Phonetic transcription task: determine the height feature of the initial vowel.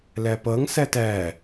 low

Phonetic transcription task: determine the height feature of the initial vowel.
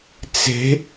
mid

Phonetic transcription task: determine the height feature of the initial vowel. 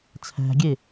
low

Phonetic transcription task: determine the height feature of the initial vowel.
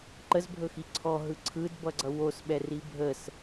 mid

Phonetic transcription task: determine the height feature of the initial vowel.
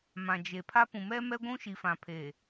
low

